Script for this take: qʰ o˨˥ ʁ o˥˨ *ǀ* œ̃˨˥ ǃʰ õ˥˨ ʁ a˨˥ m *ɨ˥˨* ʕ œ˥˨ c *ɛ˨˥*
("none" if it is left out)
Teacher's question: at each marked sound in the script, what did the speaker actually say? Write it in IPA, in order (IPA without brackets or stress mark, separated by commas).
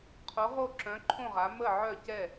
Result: ǁ, ə˥˨, ɛ˥˨